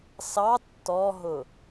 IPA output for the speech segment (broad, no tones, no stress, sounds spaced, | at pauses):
s ɑ tː ɔ ɦ ʊ